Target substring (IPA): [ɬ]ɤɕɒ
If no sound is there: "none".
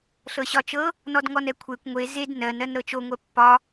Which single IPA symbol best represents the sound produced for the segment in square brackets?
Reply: ɬ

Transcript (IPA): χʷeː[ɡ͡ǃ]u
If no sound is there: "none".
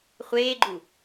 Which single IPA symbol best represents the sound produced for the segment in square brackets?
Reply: ɡ͡ǃ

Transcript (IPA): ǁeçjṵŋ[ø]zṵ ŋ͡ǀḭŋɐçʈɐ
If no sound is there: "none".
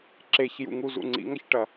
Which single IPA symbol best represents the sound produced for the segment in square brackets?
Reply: u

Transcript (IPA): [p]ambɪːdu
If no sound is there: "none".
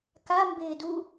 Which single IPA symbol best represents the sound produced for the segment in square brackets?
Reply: k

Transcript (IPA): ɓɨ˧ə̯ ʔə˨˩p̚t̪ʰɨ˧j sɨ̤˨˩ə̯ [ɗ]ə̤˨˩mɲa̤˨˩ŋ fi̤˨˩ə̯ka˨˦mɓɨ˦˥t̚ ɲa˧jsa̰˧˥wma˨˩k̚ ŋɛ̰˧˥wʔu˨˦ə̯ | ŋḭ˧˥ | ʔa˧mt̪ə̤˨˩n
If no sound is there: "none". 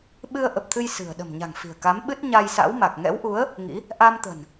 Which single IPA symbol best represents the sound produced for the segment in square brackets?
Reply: ɗ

